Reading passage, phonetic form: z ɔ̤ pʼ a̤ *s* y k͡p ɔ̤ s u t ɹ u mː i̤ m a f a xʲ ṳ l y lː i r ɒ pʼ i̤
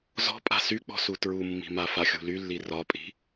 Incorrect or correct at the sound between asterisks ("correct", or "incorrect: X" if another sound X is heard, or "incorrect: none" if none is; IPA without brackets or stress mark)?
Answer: correct